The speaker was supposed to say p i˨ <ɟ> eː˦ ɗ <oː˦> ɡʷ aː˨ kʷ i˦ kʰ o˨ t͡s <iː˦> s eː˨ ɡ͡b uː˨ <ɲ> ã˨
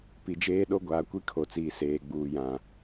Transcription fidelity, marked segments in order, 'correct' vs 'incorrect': incorrect: d͡ʒ, incorrect: o˦, incorrect: iː˨, incorrect: j

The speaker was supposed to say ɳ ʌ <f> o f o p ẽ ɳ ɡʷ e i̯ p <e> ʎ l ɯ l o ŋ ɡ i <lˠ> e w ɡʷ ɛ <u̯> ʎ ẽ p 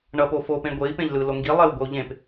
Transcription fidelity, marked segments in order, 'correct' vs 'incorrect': incorrect: p, incorrect: ẽ, correct, correct

